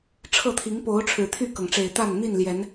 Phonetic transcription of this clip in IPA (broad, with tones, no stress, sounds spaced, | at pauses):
ʈ͡ʂʰ ɤ˥˨ t̪ʰ i˨˦ ŋ p o˨˦ ʊ̯ ʈ͡ʂʰ ɻ̩˨˩ t̪ʰ y˥˨ k ɤ˩ ŋ ʈ͡ʂ e˨˩ ɪ̯ t̪ a˥˨ n n̪ i˥˨ n l j ɛ˨˦ n